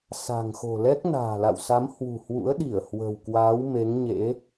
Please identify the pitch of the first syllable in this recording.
low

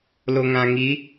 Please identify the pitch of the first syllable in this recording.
low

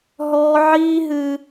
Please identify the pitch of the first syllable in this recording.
high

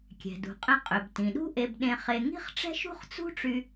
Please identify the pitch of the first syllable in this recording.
low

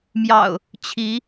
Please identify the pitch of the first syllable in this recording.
low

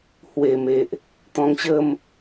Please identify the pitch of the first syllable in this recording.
low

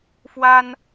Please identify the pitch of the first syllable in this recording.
high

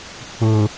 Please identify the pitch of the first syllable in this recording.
low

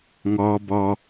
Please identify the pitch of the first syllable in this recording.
high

